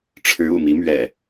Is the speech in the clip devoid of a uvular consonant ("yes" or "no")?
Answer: yes